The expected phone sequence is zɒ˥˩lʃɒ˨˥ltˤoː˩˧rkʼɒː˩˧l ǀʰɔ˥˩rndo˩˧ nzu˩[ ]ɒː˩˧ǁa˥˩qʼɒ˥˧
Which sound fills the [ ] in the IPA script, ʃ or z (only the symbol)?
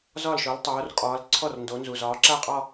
z